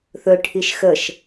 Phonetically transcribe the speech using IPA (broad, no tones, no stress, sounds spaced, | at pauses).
θ ɵ ʈʰ i ʃ x ə ʃ